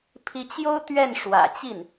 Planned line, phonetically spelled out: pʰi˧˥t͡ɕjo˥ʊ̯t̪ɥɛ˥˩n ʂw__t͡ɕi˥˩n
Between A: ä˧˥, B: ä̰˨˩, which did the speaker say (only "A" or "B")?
B